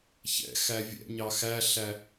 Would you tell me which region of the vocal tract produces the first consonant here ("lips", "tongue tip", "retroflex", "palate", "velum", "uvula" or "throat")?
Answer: palate